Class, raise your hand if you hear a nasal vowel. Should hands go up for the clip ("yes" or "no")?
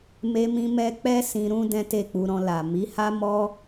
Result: yes